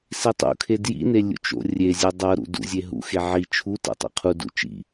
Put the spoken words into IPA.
s i tˤ ṵ kʰ e d j ḭ n e lʲ ṵ t͡ʃ o̰ rʲ e zʲ e dˤ ɤ ɾ ṵ d ṵ zʲ e ɦ ṵ x e ʕ i t͡ʃʰ u t ɛ̰ tˤ ḭ qʰ u d ṵ t͡ʃ ḭ

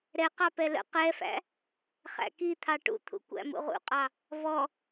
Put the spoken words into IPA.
ɾ ɛ q ɑ p ɛ l ə̰ q ɛ f æ̰ | χ æ̰ k i t̪ʰ ɑ ʈ ṵ t̪ʰ ṵ kʷ æ̰ m ṵ ʁ ṵ qʼ ɑ | v ɔ

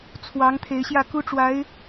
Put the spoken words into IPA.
t͡sʰ w ɑ˧˥ ŋ t̪ʰ e˧˥ ɪ̯ ɕ j ä˥˩ k u˥ ʈ͡ʂ w a˧˥ ɪ̯

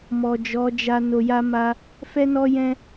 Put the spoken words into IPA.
m ɔ˨ d͡ʒ ɔ˨˦ d͡ʒ a˧ n o˧ j a˦ m a˦ | f ɛ˦ n ɔ˦ j ɛ̃˦

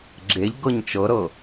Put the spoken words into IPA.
ɡ͡ǁ e ʎ ɡ ɤ ɲ t͡ʃ ɤ ɾ ɤ

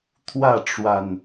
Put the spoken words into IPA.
t̪ʰ w ä˥˨ ʈ͡ʂ w a˨˩ n

